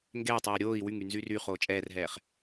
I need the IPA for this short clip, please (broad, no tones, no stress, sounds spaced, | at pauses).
ŋ ɡ ɛː tˤ ɛː ɾʲ oː i̯ w y ŋ y n z y r y χ oː t͡ʃʼ ɛː r ɦ ɛː χ